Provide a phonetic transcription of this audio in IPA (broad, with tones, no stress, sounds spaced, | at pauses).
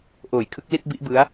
ʔ oː˨˩ j kʰ ɯ˦˥ k̚ l i˥˩ t̚ b i˦˥ ʔ b ɯ˦˥ a̯